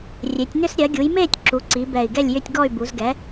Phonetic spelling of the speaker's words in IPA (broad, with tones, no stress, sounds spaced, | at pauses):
rʲ e˩˧ tʲ n ʏ˦˨ s ɾʲ ɜ˩˧ ɡʲ u˩˧ j m eː˦˨ tʲ ǁ u˩˧ ǀ i˩˧ b ɛ˨˩ i̯ ɡ ɛ˦˨ lʲ j ʏ˦˨ tʲ ɡ ɔ˦˨ y̯ b u˩˧ z ɡ ɛ˩˧